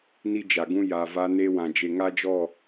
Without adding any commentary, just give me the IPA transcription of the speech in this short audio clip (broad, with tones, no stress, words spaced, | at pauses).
ni˦d͡ʒa˨ɡũ˦ ja˨va˦ ne˦wã˨ d͡ʒe˨ŋa˦d͡ʒɔ˦˨